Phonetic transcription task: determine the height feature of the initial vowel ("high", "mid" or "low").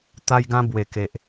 low